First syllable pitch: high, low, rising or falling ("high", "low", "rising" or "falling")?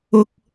high